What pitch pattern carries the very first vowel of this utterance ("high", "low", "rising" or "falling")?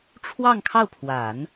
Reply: falling